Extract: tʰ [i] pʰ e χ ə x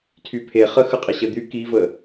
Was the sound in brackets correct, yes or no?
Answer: no